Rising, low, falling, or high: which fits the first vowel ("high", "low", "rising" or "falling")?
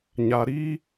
low